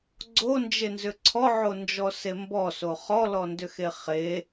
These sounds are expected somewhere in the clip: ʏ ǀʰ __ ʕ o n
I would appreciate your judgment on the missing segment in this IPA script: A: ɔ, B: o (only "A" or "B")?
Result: A